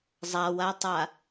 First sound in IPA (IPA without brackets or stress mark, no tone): zˤ